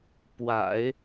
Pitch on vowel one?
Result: low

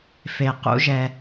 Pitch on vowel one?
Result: low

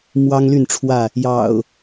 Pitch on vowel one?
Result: high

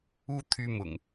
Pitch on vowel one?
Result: high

